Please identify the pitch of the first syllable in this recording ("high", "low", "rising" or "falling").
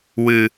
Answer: low